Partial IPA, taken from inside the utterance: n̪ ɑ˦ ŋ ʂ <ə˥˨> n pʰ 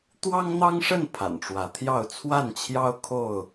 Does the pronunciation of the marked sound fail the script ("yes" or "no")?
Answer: no